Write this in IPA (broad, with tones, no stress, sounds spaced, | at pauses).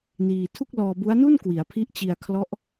n iː˧ tʰ u˥˩ k̚ l ɔː˧ b u˦˥ a̯ n u˥˩ n k w i˩˦ a̯ pʰ i˦˥ ʔ t͡ɕ i˧ a̯ kʰ l ɔ˦˥ ʔ